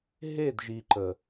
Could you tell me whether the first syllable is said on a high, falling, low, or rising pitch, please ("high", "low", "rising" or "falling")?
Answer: falling